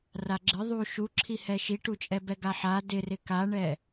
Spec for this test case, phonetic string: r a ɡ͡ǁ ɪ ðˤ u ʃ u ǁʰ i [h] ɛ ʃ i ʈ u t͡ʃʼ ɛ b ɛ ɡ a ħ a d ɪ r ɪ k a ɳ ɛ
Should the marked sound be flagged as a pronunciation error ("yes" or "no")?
no